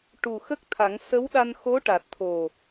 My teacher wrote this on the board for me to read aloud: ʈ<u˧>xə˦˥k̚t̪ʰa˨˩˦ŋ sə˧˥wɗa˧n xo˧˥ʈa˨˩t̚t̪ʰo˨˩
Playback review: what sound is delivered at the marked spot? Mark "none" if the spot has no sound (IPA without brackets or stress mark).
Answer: u˨˩